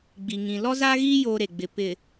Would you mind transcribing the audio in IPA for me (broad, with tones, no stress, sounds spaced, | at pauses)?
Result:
ɡ͡b i˨ ŋ ĩ˨ l ɔ˦ z aː˦ ɣ iː˦ j oː˦ ɾ e˨ ɡ͡b ɪ˨ p ɪ˨